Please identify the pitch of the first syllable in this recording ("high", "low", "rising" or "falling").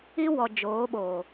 high